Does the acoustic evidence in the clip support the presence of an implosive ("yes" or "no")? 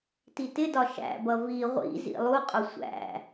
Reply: no